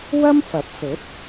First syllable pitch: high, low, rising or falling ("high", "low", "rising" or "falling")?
high